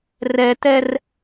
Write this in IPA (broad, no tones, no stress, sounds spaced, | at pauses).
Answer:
r ɛ t̪ ɛ r